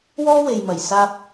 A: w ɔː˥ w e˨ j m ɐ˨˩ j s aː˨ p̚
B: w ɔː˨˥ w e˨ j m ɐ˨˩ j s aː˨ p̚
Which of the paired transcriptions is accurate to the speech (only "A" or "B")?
A